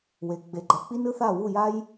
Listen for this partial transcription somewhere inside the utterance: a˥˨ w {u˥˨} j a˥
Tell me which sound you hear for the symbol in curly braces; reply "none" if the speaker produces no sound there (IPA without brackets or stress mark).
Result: u˥˨